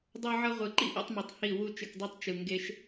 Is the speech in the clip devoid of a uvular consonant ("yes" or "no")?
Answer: no